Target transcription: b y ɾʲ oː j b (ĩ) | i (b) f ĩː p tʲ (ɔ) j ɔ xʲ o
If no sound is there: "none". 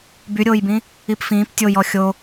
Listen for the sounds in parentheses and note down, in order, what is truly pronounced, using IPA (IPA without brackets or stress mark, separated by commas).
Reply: ĩ, p, o